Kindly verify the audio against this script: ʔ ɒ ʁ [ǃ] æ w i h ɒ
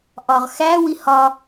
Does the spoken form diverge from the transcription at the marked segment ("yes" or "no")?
yes